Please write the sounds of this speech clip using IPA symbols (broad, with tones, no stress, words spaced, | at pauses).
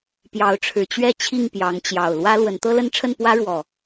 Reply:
pjɑ˨˦ʊ̯ʈ͡ʂʰɻ̩˨˩t͡ɕɥɛ˥˨ t͡ɕʰi˥˨ŋpjɑ˨˦ŋt͡ɕjɑ˨˩ʊ̯ lwä˦lwə˨˦n t̪ɤ˦lə˦nʈ͡ʂʰə˥˨n pwä˦ɻwɔ˨˩